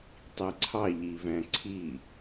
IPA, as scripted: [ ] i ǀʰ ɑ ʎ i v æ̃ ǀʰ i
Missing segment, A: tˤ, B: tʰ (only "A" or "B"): A